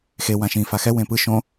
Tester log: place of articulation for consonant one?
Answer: velar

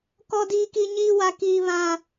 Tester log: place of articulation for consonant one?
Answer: velar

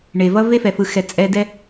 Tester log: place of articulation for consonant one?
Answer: retroflex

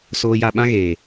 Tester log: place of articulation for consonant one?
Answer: alveolar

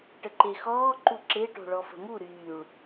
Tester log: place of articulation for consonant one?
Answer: retroflex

